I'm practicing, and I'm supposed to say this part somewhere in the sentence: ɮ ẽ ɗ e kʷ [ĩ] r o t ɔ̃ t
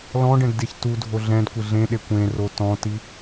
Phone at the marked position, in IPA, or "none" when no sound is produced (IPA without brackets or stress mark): ẽ